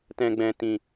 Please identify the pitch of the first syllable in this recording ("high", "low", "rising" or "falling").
low